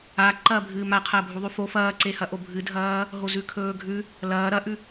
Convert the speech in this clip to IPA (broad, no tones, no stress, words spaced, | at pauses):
a ǃɐːbʱɨːmaqʰɐː bʱuðˤʉfo fɐːǀehɐʔo bʱɨdʱɐː | ɦozʉkʰɵːɡʱʉ | lɐː ɾɐʔʉ